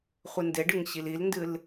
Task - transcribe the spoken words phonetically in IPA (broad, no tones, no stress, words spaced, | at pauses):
χʷɨndeɖɨŋɕil ilndɨl